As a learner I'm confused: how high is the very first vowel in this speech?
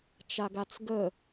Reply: low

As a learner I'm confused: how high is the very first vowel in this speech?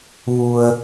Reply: high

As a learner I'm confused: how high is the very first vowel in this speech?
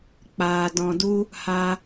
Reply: low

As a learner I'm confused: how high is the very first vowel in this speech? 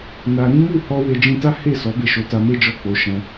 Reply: low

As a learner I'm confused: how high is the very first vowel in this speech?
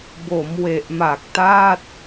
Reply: mid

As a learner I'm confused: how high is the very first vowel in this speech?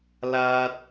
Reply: low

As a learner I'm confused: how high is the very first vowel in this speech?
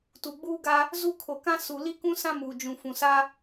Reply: high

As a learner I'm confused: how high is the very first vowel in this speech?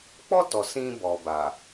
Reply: mid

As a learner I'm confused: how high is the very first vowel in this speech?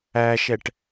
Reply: low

